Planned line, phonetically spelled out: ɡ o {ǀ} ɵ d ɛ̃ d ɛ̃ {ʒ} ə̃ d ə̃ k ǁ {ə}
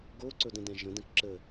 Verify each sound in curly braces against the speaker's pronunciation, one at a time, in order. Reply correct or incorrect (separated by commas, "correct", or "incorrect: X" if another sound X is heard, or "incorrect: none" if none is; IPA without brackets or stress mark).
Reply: correct, correct, correct